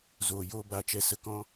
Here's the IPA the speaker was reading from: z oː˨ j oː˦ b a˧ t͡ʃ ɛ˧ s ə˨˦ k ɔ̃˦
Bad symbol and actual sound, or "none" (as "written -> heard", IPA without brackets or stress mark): none